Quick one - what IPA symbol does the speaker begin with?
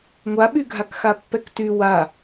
ŋʷ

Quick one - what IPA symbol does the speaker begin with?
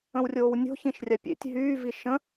ə̃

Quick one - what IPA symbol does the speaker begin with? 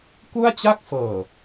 k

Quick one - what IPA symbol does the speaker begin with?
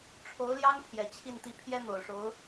ʈ͡ʂʰ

